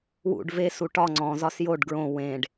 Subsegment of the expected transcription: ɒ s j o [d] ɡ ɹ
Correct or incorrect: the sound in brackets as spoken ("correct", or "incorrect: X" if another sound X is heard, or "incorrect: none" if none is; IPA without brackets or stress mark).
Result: incorrect: ɖ